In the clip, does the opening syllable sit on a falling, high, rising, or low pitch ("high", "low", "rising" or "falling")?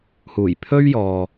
low